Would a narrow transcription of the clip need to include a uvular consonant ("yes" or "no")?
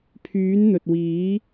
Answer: no